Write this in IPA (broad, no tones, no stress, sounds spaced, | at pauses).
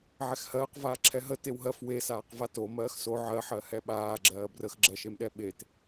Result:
ʕ ɛ x h ɜː q v aː ǁʰ ɛ ɦ ə t e w ɦ ɜ f w e s aː q v a t o m ɜː x s o ʕ ɜ ħ ɜ h ɛ ɓ aː ɡ͡ǁ ɜː b r ə x ɡ͡ǁ ɜ ʃ e m ɗ ɛ ɓ e t